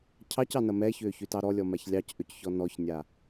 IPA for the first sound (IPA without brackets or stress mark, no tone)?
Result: cʰ